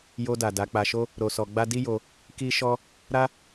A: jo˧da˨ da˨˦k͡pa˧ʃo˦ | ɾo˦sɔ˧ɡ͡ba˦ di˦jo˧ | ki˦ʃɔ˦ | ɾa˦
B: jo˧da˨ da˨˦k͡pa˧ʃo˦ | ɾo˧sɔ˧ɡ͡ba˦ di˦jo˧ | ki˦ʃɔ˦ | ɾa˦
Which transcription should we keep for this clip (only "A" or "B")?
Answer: B